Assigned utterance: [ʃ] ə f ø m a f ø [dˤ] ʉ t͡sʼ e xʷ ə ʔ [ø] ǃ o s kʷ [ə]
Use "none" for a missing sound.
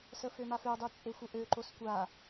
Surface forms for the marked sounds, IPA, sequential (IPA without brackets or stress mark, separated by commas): s, dˤ, ø, a